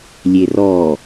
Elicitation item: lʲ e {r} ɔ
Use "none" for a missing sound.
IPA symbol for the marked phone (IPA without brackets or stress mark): r